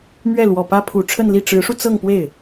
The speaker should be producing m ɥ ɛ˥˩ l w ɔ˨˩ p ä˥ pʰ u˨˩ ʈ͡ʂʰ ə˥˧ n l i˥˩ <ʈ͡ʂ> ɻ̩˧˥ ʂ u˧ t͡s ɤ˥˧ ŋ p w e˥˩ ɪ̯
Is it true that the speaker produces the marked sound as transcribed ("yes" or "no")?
yes